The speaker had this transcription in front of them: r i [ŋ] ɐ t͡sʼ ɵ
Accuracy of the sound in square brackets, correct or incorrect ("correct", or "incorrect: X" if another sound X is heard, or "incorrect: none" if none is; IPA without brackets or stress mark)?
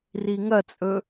correct